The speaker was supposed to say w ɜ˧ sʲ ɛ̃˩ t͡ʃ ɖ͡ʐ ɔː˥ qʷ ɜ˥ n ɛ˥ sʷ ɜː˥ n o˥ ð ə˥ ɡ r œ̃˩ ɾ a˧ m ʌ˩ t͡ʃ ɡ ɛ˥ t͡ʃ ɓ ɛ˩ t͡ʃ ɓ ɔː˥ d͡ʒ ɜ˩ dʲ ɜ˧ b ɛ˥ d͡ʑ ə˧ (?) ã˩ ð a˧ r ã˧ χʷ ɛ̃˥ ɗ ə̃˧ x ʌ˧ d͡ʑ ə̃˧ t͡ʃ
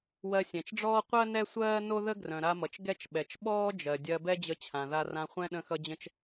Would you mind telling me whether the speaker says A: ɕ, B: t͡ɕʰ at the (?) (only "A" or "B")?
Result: B